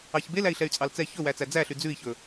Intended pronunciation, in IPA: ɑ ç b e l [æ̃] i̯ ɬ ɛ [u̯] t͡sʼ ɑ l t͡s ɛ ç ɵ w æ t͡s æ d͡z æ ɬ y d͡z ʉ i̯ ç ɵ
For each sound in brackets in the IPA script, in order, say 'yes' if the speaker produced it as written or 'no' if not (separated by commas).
no, no